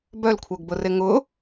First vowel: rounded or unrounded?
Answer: rounded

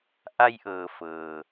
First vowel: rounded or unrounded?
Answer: unrounded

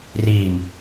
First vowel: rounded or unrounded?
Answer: unrounded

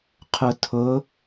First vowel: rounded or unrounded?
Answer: rounded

